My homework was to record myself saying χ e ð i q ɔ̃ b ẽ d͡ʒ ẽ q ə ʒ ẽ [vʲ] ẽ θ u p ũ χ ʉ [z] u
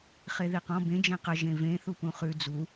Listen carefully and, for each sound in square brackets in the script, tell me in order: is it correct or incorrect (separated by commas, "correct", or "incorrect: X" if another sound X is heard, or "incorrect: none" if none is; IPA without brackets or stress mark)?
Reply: incorrect: v, incorrect: d͡z